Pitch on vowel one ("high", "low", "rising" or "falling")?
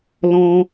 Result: high